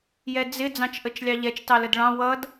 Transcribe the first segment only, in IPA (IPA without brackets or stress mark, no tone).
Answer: j